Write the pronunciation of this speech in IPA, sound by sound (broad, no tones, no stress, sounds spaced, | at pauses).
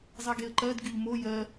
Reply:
zˤ e ɡ e ə̯ ǃ ɜ d ɡ y ʎ m o j ɜ